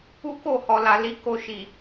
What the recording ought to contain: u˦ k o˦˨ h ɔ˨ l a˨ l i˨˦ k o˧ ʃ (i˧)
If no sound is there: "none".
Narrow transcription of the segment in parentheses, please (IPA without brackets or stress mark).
i˨